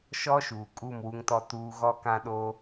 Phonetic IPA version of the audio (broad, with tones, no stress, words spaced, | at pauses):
ʃɔ˦ ʃuː˨kʼu˦˨m wu˦ŋtɔ˦ tuː˦ ɣɔ˦kã˦ ɗo˦